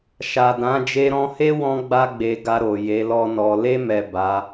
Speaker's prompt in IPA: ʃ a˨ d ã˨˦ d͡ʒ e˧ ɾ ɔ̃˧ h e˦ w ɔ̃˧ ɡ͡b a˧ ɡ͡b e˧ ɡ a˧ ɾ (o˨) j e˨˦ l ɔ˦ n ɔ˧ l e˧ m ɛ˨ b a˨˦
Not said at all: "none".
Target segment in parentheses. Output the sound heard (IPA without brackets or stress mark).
o˨